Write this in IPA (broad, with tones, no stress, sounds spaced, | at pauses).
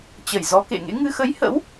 t͡ɕ ə˧˩ j z ɔ˨˦ k ḛ˧˨ ŋ ḛ˧˥ ŋ ɨ˧ x ə˨˦ j h ə̰˧˥ w